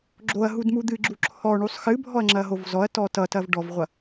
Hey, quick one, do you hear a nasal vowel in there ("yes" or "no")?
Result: no